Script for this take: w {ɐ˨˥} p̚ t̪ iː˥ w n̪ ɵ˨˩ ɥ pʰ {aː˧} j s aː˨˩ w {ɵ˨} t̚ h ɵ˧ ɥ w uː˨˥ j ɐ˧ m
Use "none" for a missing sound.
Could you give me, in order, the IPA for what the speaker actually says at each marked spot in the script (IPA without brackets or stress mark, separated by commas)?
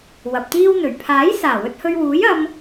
ɐ˨, aː˨˥, ɵ˧